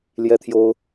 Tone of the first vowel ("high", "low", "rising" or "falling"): high